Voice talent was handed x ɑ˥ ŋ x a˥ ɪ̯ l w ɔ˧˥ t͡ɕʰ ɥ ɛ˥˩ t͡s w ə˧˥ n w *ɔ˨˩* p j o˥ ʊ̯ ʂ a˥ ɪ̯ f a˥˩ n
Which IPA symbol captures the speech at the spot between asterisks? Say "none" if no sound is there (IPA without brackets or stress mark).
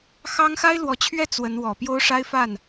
ɔ˨˩